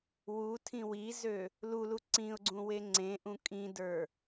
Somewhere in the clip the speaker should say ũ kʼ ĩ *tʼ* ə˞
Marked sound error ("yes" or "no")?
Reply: yes